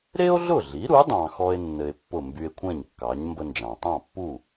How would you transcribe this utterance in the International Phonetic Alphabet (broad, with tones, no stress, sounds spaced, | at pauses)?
ɾ e˥ o̯ ɮ ʊ˥˩ ɮ i˩˥ ɾ u˩˥ dˤ ɑ̃˧ x ɔ˥ e̯ nː ɘ˧ e̯ pː ʊ˥˩ m b y˧ e̯ kʷʰ ɛ̃˥˩ ɲ kː ɑ˩˥ ɲ m b ə˧ n d͡ʒ ɑ̃˩ tˤ ɑ̃˥˩ pː u˥˩